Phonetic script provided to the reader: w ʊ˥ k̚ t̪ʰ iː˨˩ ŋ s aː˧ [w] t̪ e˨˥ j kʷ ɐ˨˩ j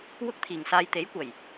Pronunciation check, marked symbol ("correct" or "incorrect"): incorrect